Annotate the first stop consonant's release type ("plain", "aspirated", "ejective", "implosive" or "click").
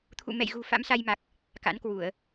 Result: aspirated